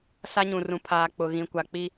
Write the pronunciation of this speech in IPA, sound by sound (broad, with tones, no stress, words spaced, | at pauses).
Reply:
sa˦ɲũ˨rũ˨ pʰaː˨k͡pʊ˨ɣĩ˨kʷa˨ k͡pi˦